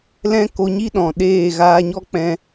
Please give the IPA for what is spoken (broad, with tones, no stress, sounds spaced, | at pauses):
l ɛ̃˦ k o˧ ɲ i˦ ɗ ɔ̃˨ ɗ eː˦˨ ɣ aː˧ ɲ ɔ˦ k͡p ɛ̃˧